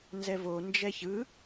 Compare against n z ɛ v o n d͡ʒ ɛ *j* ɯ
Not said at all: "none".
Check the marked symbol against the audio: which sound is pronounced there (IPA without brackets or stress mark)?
ç